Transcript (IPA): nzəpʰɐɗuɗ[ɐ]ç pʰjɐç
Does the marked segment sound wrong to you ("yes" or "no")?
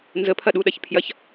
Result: no